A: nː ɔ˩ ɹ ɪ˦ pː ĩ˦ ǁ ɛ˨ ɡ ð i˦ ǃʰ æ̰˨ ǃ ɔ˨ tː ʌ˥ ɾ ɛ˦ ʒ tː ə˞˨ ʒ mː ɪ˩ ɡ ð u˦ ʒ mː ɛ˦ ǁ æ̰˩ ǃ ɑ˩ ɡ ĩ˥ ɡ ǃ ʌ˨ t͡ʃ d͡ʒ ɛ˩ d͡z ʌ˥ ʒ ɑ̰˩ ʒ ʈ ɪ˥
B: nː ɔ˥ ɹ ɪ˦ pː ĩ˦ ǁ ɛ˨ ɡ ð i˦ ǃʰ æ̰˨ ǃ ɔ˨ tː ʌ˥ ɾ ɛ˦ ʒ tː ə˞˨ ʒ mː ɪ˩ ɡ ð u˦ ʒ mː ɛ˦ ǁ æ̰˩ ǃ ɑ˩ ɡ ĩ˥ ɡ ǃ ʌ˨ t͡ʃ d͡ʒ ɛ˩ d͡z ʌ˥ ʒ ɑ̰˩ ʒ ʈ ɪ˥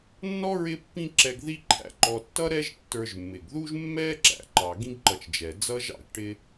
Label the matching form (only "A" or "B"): B